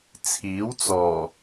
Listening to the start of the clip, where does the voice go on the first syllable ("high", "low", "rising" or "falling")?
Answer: rising